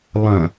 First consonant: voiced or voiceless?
voiced